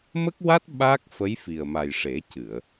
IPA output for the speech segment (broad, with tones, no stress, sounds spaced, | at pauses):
m ə˦˥ k̚ w a˦˥ t̚ ɓ a˦˥ k̚ f ə˧˥ j f i˨˩ ə̯ m a˨˩ j ʂ e˨˩˦ c ɨ˨˩˨ ə̯